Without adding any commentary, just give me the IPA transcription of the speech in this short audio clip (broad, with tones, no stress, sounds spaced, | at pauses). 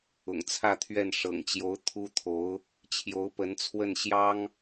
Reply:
ʊ̰˨˩ ŋ t͡sʰ ä˥˧ t̪ʰ ɥ ɛ˥˩ n ʂ ɤ̰˨˩ ŋ t͡ɕ j o˧˥ ʊ̯ t̪ʰ u˥ t̪ʰ o˧˥ ʊ̯ | t͡ɕʰ j o˧˥ ʊ̯ p ə˧˥ n t͡sʰ w ə˥˩ n ɕ j ɑ˥ ŋ